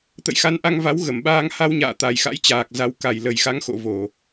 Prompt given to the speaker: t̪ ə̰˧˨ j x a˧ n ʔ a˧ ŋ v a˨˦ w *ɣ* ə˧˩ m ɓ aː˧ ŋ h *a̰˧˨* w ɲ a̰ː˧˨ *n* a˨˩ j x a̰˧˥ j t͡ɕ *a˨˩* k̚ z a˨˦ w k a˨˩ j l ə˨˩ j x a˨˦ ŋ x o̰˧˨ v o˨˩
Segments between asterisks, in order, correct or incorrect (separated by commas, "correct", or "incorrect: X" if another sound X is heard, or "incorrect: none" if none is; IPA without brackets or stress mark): correct, incorrect: a˧, incorrect: t̪, incorrect: aː˨˩